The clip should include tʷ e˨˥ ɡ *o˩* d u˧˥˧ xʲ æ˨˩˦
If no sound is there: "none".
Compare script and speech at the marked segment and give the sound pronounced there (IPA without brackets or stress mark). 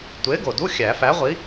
o˩